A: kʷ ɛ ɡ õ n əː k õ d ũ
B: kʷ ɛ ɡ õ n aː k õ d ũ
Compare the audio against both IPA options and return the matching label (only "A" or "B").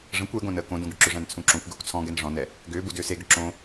A